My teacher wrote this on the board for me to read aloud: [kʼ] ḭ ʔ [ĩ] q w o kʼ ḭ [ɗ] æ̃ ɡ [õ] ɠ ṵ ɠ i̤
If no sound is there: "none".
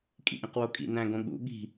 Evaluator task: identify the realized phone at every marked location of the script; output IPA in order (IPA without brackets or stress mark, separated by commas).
kʼ, ĩ, n, õ